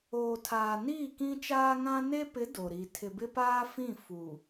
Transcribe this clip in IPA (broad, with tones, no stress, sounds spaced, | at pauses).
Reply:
oː˨ tʰ aː˨ n iː˦˨ k ĩ˦ t͡ʃ aː˦ ŋ ã˦ n e˦ p ɪ˨˦ d o˨ ɾ i˨ tʰ ɪ˨ b ɪ˦ p aː˦ f ĩ˦˨ f u˨